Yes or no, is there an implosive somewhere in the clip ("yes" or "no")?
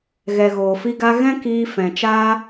no